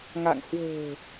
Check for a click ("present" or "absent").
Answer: absent